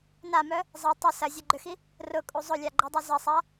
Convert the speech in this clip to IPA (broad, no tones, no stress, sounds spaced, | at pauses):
n a m œ | zˤ ɐ tˤ ə s ɐ zʲ œ ɡ͡ǃ ʏ x i | r ʊ kʼ u zˤ ʊ lʲ a ɡ͡ǃ ø dˤ u z ɐ sˤ a